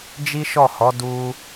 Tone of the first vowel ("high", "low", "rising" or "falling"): high